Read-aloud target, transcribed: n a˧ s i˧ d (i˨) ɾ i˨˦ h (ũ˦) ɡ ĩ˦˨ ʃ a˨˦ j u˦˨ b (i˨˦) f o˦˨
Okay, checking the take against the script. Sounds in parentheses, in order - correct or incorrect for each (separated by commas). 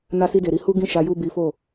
incorrect, incorrect, correct